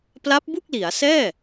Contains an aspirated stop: no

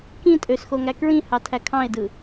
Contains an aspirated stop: yes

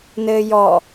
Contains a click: no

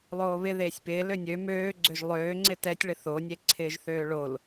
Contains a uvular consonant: no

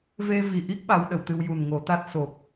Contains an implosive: yes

